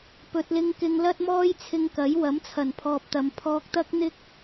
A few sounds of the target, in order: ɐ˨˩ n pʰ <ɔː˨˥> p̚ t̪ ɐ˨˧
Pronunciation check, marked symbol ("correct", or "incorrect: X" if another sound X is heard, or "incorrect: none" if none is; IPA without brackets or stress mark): incorrect: ɔː˨